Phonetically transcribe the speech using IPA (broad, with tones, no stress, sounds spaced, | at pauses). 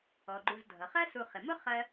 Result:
ɔ˩ ɡ͡ǃ u˨ z dʱ ʌ˩ χ ɜ˦ s u˨ χ ɪ˩ m ʊ˥ χ ɜ˦